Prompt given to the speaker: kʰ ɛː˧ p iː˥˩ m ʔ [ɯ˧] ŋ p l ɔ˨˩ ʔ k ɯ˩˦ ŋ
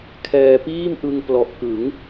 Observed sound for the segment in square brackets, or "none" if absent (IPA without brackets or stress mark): ɯ˧